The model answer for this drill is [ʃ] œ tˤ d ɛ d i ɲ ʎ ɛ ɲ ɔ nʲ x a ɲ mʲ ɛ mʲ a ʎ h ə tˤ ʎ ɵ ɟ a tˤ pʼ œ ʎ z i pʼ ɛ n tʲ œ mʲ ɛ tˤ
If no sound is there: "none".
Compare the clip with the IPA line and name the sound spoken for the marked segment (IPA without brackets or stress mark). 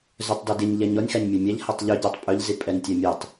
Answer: z